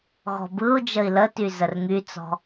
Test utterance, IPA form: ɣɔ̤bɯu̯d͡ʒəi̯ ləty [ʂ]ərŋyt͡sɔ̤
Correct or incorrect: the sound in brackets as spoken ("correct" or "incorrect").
incorrect